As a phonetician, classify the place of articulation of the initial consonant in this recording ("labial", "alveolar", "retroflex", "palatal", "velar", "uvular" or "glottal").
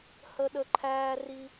glottal